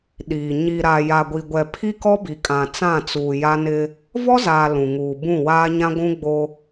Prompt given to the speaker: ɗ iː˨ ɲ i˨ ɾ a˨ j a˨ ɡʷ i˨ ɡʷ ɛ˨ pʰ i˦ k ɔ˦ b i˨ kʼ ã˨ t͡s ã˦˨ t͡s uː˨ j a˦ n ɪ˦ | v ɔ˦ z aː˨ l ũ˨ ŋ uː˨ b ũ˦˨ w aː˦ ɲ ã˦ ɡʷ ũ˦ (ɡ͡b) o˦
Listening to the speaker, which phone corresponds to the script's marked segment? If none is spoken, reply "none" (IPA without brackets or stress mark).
ɡ͡b